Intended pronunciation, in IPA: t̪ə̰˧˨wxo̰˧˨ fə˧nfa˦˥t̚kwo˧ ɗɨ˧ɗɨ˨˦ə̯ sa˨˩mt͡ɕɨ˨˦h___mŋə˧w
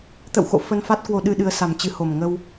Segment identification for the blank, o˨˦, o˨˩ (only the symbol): o˨˩